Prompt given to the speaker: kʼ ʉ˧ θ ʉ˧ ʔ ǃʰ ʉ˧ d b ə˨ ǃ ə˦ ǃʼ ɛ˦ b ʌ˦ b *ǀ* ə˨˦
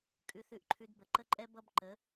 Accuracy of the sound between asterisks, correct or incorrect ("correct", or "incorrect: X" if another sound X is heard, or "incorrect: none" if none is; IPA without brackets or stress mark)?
incorrect: ǃ